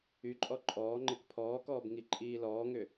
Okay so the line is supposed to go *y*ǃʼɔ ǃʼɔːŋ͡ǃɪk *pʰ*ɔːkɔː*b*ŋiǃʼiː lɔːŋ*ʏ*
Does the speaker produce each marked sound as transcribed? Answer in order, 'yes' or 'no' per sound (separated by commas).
yes, yes, yes, yes